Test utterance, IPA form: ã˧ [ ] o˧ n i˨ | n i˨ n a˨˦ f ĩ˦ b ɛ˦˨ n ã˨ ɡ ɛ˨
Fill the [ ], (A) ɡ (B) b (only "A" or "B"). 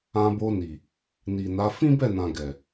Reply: B